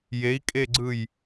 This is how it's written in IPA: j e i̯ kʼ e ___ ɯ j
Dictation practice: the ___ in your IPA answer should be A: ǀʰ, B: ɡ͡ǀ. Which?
B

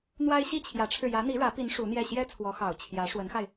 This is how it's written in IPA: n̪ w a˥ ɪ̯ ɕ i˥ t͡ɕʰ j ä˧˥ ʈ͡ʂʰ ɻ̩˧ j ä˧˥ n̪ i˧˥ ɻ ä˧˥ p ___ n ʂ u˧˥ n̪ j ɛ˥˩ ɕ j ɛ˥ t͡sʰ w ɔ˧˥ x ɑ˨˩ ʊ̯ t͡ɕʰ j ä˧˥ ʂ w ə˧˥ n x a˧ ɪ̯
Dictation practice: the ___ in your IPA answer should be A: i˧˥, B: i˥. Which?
A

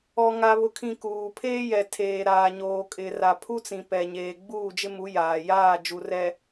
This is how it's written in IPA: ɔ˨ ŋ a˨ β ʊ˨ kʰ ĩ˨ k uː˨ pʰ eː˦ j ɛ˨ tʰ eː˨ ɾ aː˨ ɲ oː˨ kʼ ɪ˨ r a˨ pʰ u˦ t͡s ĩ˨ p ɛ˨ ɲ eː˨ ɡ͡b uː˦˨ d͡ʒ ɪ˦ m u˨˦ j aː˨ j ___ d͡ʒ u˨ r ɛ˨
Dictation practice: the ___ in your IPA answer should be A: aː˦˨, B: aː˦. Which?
A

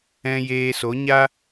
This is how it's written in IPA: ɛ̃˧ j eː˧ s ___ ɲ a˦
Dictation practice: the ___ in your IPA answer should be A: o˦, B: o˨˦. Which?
B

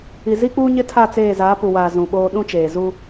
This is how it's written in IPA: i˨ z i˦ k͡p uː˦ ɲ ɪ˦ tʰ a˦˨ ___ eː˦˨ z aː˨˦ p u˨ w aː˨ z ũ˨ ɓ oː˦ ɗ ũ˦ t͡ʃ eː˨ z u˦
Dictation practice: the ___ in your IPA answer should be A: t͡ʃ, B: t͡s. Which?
B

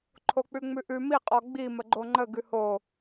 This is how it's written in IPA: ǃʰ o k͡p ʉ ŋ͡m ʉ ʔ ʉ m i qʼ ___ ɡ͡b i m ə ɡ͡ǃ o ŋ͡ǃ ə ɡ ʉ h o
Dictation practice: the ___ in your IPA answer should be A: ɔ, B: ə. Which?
A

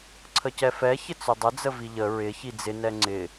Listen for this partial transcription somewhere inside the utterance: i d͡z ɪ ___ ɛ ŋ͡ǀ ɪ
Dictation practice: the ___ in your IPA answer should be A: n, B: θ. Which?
A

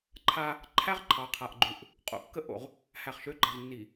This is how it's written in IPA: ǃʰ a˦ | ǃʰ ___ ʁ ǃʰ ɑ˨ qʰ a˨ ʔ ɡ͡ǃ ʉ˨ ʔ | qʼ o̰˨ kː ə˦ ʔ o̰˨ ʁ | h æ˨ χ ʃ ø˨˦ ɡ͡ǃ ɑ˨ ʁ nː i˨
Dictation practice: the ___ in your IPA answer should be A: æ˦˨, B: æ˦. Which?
B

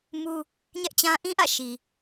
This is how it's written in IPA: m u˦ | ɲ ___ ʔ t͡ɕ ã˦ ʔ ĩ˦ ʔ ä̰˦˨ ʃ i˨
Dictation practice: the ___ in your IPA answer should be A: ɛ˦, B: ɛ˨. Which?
A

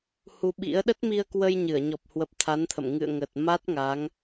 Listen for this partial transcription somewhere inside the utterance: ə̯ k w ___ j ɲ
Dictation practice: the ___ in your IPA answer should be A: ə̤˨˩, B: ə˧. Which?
B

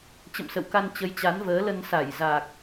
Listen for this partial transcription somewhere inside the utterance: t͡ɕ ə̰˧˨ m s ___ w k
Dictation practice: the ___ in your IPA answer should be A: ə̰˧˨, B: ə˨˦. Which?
A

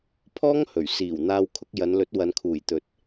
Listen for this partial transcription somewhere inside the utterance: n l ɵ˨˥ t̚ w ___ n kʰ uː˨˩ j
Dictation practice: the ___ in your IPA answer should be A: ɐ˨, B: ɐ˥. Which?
A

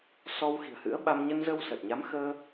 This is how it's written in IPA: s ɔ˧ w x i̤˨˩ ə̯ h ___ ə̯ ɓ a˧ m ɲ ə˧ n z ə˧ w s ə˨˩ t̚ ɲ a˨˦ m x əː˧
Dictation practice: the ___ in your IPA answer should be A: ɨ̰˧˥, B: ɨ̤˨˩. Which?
A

